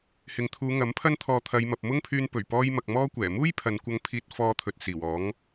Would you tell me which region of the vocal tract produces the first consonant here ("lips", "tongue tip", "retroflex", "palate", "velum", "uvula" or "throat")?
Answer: throat